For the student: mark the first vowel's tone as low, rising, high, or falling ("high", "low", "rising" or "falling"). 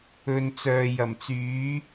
low